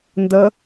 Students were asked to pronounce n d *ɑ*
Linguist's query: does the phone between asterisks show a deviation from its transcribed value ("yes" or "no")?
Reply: yes